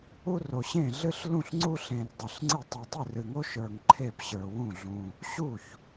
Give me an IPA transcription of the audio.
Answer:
u˥ r o˧ ɕ ẽ˥˨ ɮ ɨ˥ ɬ l ũ˥˨ ɬ ŋ͡ǀ u˥ ɬ ẽ˧ r dˤ ɨ˧˩ ɬ ŋ͡ǀ ɨ˥˨ tˤ u˧ tˤ ɨ˥˨ r ɨ˧ ŋ o˥ ʃ ə˞˧ ŋ ǃʰ e˥˨ p ɕ ə˞˧ w ũ˥˨ ɮ ũ˧ | ɕ u˥˨ ç

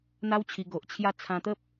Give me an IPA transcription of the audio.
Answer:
n̪ a˦ w t͡ɕʰ i˧ ɡ o˨ ʔ t͡ɕʰ j a˧ t͡sʰ ã˧ t̪ ə˦ p̚

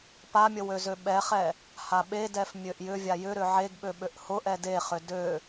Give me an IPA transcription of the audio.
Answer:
p a mʲ ə w ø z ø ɓ ɛ χ ɛ | h a ɓ e d ɛ f mʲ ø ʔ j ʏ vʲ a j ʏ ɾ ʏ ʕ e ɡ ɓ ø ɓ ø ʔ h ʊ ʔ ɛ d e χ ʏ d ø

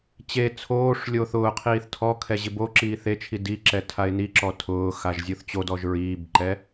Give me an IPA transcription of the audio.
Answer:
t͡ɕ e t͡sʰ oː ʂ lʲ oː θ ʊː qʰ iː θ tʰ ɔ kʰ ɛ ʑ ɪ b o ǁ iː θ e t͡ʃʰ i d i ǁ ɛ tʰ a ɪ̯ n i ǁ ɔ tʰ ʊː x a ʒ zʲ u θ t͡ɕ o d ɔ ʒ ɹ iː b ǃ ɛ

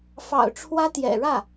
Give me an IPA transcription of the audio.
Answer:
f ɑ̰˨˩ ʊ̯ ʈ͡ʂʰ w ä˥ t̪ j ɛ̰˨˩ ɻ ä˥˩

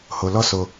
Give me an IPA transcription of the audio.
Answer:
h o˨ l ɔ˧ s o˧

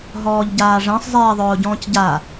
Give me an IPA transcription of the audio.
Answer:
ɦ ɔː ʎ ɟ aː ʐ ɛ̃ sˤ zˤ eː ðˤ ʊː ɟ ɔ̃ː c ɟ a

